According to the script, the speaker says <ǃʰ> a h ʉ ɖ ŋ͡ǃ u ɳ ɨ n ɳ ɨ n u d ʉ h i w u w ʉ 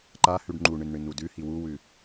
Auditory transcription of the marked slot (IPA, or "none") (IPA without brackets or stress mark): ǃ